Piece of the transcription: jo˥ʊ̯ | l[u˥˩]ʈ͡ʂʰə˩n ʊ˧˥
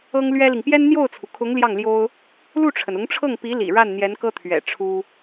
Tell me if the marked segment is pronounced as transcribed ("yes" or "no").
yes